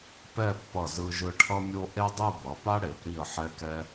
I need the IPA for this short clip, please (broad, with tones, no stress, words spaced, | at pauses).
pɛ˥˧pːʌ˧˩zɯ˧ ʒɯ˧ʈʰʌ˥mʲo˥ ʔe˥dˤɯ˥˧ bʌ˩˧pa˥ɽe˩˧p ɾi˧˩ə̯ħɛ˧kɛ˧